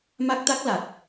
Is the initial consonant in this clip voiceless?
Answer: no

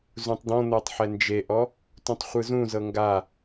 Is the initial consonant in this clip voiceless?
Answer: no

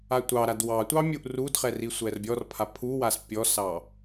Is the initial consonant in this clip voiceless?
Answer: yes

